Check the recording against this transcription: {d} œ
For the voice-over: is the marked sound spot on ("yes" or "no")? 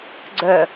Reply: no